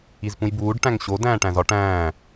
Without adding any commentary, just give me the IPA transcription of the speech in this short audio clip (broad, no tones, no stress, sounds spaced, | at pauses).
i z p ũ j b uː ɖ ʈ æ̃ ŋ ɕ o d æ̃ː ʈ æ̃ z ɒ ʈ æ̃ː